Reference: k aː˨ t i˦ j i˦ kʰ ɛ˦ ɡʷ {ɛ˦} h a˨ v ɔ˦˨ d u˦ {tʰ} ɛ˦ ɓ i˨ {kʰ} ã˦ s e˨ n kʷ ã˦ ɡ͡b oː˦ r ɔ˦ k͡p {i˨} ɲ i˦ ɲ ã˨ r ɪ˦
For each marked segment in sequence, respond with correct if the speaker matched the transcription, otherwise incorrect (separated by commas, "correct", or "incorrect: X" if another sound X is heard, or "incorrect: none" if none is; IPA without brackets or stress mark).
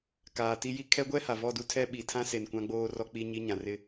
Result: correct, correct, incorrect: tʰ, incorrect: i˦